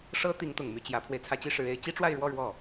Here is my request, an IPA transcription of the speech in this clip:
ʂ ɤ˥ t̪ i˧˥ ŋ t̪ ʊ˨˩ ŋ m y˥˩ t͡ɕ j ä˧˥ pʰ w e˧ ɪ̯ t͡sʰ ä˥ t͡ɕ i˥ ʂ ɻ̩˧˥ e˧˥ ɪ̯ t͡ɕ i˥ ʈ͡ʂ w a˥˧ ɪ̯ ɻ w ɔ˥˧ ɻ w ɔ˥˩

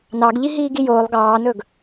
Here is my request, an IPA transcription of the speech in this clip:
n ɑ ɡ ʎ i ɦ iː ɡ i j oː lˠ ɡ ɑː n ɵ ɡ

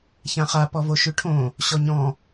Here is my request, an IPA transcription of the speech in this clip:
ç ã χ a p ɔ v o ʃ ʉ ʈʰ õ | ɕ ɔ ɲ ɔ̃

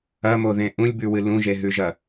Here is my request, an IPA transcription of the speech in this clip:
ɐ m o ð ẽ ʔ ũ lʲ b ʉ w ɨ l ũ ʒ e ɦ ʉ ʒ ɐ

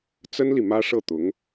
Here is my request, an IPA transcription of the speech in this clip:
t͡s ə˥ n l i˨ m ä˥ ʂ ɤ˥˩ t̪ ʊ˧˥ ŋ

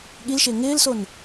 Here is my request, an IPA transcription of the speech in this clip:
ɠ i l ʃ ɪː ŋ ɪː l s o n

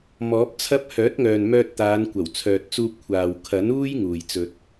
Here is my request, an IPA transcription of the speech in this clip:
m ɔː˨˥ p̚ t͡sʰ ɐ˥ p̚ h œː˨˥ t̚ ŋ œː˨ n m œː˧ t̚ t̪ aː˨˧ n kʷ ɐ˨˩ w t͡sʰ œː˨ t̚ t͡s uː˧ p̚ kʷʰ aː˨ w kʰ ɐ˨˥ n uː˥ j ŋ uː˨ j t͡s ɵ˧ t̚

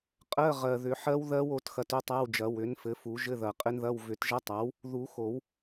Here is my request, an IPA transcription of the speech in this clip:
qʼ ɜ˧˥˧ ʁ ɜ˨˩ ð ʏ˨˩˦ ħ ɜ˦˥ w ð ɜ˦˥ w o˩˥ t x ɐ˧ t ʏ˧˥˧ tˤ a˧˥˧ w d͡ʒ ɐ˨˩˦ w ʏ˩˥ n f ɘ˩˥ f u˨˩˦ ʒ ɘ˧˥˧ ð ɐ˨˩ qʼ ɘ˦˥ n ð ɐ˧˥˧ w v ʏ˨˩˦ t ʒ ɐ˦˥ tˤ a˩˥ w | ð u˨˩˦ x o˨˩˦ w

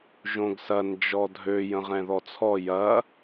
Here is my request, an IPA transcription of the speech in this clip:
ʒ õ ɡ s ɐ n d͡ʒ ɔ dʱ ø j ə̃ ʁ ɛ̃ ð ɔ t͡sʰ ɔ j ɐ

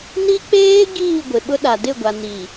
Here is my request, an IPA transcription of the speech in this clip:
n i˦ k͡p eː˦ ɡ iː˦˨ ɡʷ ɪ˨ ɓ ʊ˦ ɗ a˨ d ɪ˦˨ ɡʷ a˨ n i˨

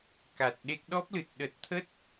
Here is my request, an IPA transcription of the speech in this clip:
k a˨˩ t̚ ɗ e˦˥ k̚ ɗ ɔ˦˥ p̚ l ɨ˨˩ t̚ ɗ ə˨˩ t̚ t̪ʰ ə˦˥ t̚

